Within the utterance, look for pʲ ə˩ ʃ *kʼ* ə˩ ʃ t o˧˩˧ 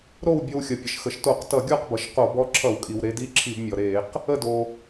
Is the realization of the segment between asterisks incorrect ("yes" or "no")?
yes